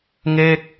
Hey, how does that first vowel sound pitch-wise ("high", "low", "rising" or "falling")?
falling